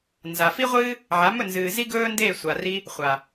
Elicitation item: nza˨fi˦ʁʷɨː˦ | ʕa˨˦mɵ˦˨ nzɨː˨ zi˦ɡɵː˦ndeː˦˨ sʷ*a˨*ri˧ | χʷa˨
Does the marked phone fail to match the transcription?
no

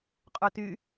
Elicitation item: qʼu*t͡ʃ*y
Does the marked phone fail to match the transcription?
yes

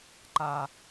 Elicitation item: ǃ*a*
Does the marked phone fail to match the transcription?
no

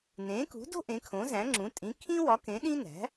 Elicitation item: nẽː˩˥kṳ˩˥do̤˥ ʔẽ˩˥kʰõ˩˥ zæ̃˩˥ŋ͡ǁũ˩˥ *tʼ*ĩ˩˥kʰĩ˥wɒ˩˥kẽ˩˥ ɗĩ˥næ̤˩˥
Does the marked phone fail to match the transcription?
no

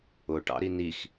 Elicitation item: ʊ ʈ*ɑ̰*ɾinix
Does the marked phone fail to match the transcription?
no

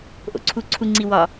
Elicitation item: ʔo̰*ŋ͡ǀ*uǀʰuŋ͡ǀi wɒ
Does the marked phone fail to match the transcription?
yes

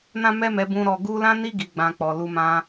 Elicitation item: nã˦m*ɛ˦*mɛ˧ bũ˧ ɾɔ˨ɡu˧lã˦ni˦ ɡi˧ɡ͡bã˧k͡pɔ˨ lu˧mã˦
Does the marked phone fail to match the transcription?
no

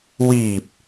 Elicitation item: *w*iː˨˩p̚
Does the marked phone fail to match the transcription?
no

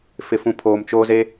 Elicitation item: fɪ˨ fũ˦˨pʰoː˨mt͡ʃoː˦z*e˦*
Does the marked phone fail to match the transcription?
no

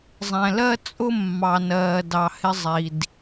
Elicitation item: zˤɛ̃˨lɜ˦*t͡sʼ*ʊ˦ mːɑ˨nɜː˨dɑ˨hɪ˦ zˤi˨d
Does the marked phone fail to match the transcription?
no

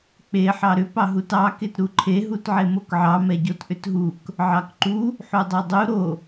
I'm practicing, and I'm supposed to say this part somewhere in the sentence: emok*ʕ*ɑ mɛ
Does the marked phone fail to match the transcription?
no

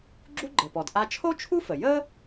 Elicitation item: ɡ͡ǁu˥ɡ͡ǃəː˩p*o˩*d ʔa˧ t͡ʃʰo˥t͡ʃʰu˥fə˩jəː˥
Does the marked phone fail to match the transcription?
yes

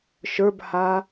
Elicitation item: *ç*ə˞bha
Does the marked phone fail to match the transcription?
yes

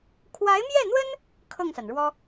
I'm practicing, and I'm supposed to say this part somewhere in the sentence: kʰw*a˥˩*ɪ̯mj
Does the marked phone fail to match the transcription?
yes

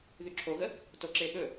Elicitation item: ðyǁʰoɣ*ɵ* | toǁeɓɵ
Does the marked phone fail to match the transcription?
yes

